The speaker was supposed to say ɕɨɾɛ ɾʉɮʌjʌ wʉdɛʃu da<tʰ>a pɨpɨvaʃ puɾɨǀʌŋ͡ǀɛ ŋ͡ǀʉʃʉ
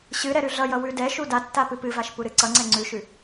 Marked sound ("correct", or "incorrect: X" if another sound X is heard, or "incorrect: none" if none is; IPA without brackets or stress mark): incorrect: tː